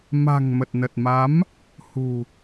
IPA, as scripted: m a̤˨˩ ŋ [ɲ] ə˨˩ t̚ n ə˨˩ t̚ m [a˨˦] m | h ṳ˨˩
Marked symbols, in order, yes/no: no, yes

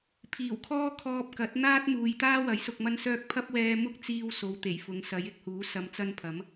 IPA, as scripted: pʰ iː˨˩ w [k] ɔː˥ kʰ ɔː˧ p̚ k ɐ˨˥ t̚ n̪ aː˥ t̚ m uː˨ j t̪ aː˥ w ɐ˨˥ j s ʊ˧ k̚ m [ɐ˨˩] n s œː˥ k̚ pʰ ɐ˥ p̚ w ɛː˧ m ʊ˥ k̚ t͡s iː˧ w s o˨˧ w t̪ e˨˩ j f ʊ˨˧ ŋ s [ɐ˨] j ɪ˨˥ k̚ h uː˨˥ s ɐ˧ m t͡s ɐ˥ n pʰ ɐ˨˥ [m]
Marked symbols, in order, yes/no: no, no, no, yes

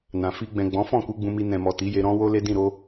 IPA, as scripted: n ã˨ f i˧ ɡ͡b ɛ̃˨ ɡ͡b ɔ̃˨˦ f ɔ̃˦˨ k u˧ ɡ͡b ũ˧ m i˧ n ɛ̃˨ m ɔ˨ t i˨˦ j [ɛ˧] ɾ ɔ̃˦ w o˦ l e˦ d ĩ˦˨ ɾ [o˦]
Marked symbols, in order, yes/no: no, no

